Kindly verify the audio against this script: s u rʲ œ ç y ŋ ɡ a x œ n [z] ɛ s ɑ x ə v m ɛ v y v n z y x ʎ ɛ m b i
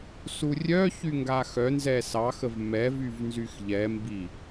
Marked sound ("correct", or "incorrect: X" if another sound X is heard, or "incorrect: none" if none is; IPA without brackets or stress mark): correct